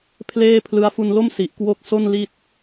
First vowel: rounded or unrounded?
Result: unrounded